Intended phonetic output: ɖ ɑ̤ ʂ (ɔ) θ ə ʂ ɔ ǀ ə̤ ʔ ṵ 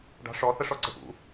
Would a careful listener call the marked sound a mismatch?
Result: no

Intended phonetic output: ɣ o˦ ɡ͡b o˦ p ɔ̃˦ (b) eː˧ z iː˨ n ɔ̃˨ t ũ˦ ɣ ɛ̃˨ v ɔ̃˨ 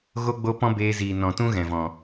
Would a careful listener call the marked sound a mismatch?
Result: no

